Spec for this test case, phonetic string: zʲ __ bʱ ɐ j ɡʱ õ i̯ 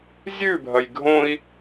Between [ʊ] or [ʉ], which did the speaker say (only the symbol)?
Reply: ʉ